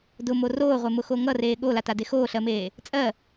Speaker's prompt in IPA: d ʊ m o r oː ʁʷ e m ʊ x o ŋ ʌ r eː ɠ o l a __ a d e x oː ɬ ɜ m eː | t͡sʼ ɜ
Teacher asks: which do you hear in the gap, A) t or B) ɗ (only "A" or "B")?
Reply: A